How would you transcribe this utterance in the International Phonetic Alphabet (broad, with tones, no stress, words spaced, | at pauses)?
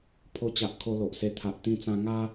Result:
pʰo˧t͡ɕa˨ʔ kʰo˧lo˨ʔse˧ t̪ʰa˨ʔt̪ĩ˧ t͡sã˧ŋa˦